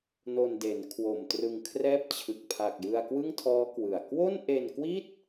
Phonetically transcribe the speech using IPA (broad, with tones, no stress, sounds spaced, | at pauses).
n o˧ n d e˩˦ n kʰ w o˨˩ m t r ɯ˧ ŋ kʰ r ɛː˥˩ p̚ t͡ɕʰ ɯ˨˩ k̚ pʰ a˨˩ k̚ j ɯ˧ a̯ k w ɯ˥˩ ŋ tʰ ɔː˦˥ k w ɯ˨˩ a̯ k w o˥˩ n ʔ e˧ n k w i˥˩ t̚